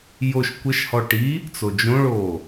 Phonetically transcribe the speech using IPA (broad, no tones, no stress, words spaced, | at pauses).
joʃ kʷəʃhɔ ʈi | t͡sod͡ʒõɭoː